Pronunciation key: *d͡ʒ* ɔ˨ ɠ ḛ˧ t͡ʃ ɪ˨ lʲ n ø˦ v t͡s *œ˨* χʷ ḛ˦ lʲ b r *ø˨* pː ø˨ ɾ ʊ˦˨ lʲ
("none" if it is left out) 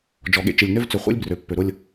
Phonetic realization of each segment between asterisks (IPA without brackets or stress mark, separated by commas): d͡ʒ, ø˨, ø˨